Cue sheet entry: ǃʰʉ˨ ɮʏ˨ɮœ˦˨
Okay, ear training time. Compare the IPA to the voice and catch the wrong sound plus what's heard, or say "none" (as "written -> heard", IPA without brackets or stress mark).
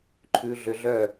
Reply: none